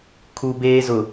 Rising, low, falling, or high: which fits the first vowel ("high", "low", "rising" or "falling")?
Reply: low